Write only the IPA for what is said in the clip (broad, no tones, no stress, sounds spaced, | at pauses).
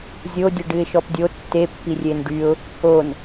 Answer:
zʲ o dʲ ə ɖ ɨ ɪ̯ ʃ ɔ p dʲ o tː e pː i rʲ e n ɖ y ʊ̯ | o n